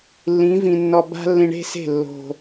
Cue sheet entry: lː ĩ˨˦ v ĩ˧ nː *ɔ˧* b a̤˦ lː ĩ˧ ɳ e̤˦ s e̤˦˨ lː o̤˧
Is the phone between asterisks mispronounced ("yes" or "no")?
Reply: no